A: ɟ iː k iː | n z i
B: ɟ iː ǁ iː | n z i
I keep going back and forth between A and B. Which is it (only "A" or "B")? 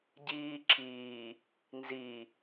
B